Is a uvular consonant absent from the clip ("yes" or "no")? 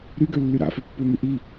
yes